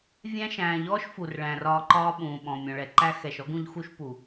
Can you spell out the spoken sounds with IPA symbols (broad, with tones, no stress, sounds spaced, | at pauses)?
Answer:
vʲ æ̃˦ ʃ æ̃ː˨ ʎ ɔː˦ ʃ f u˨ r ɭ æ̃˨ r ɒː˧ ǃ ɒː˦ ɓ ũː˨ ɓ ɔ̃˨ mʲ ɔ̃˨ ɭ ɛ˨ ǃ æ˦ x ɛ˨ ʃ ɔ˦ ɡ ũ˧ ʎ x u˦ ʃ p u˨